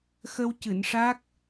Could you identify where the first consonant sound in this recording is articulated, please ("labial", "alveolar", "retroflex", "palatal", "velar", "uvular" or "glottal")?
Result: velar